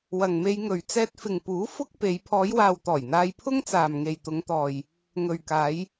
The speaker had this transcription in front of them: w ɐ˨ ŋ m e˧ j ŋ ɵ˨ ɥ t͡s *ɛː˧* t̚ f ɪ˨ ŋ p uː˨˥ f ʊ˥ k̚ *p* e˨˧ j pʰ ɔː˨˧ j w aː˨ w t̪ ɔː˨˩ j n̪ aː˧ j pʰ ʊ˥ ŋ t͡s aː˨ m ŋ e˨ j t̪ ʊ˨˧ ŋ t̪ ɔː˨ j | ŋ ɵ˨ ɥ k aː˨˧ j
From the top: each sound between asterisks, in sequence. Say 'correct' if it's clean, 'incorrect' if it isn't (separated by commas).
correct, correct